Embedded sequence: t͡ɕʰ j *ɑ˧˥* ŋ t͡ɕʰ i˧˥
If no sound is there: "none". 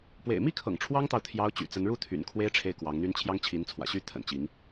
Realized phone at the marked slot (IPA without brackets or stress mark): ɑ˥